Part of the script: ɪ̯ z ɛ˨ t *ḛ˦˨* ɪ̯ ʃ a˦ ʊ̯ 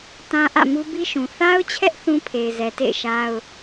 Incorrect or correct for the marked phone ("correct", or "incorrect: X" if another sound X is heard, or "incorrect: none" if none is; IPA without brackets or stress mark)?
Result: correct